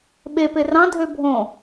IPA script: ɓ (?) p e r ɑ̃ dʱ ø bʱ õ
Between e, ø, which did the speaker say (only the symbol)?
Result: e